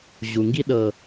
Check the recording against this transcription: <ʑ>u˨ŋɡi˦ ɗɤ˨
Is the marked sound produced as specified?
yes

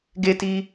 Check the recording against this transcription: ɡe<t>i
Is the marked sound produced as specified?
yes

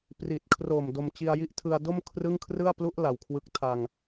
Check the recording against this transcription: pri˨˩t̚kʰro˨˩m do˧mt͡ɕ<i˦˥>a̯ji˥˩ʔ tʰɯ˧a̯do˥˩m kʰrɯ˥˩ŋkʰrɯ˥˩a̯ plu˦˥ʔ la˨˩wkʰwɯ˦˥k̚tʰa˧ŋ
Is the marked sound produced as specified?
no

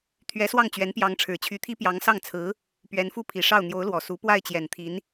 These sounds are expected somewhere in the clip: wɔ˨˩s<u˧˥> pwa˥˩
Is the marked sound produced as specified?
yes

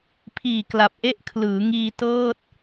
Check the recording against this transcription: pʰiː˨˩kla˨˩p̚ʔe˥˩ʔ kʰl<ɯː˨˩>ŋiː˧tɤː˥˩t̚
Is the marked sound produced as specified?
no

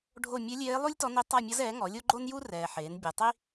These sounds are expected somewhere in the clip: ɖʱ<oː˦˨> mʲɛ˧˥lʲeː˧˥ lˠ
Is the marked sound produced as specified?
no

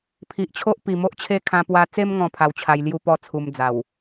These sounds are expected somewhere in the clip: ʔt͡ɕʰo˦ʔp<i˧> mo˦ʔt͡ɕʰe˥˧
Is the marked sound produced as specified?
no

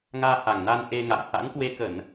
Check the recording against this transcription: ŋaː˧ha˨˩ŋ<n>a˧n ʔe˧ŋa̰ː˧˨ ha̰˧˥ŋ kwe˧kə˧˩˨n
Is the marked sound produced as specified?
yes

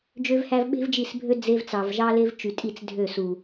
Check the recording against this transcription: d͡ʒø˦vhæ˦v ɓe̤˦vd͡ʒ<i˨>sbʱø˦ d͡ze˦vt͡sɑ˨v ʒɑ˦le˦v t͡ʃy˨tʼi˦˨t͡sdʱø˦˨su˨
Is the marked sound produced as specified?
no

